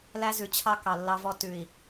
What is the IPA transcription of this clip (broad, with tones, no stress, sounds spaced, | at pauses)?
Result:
l æ˦ z ʉ˨ t͡ɕʰ ɑ˦ k ɑ˨ lː ɑ˦ v ɔ˦ t ʉ˨ i̯